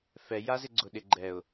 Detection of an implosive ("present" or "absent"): present